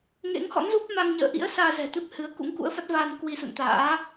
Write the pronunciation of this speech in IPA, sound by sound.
ŋḛ˧˥ŋhɔ̰˧˥nzu˦˥p̚ma˧ŋ ɲə̰ː˧˨ʔḭ˧˥ə̯ saː˧zɛ̤˨˩t̪ɨ˦˥p̚ hɨ˨˦ə̯ kṵ˧˥ŋkṵ˧˥ə̯fa˦˥t̚vaː˧n kwi˧sṵ˧˨nt̪a̰ː˧˥

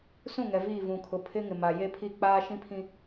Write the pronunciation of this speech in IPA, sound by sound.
sũ˦˨ŋɛ˨ viː˦˨vũ˨ kʰʊ˨ pʰɪ˦ŋɪ˨ma˨ je˦pʰi˦˨ k͡paː˦ʃĩ˦pʰĩ˦

